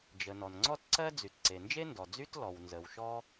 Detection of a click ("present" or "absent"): present